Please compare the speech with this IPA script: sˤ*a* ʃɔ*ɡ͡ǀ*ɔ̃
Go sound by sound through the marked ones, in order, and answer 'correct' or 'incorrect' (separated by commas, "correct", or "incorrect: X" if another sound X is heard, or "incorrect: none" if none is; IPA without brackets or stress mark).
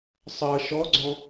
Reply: incorrect: ʌ, correct